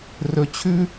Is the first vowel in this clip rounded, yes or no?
yes